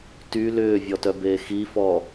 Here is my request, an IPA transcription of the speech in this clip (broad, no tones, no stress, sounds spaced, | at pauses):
t y l ʏː vʲ ɔ t œ b eː x i f ɔ